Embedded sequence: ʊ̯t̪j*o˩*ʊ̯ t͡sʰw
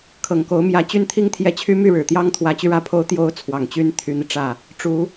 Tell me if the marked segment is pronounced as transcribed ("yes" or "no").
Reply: no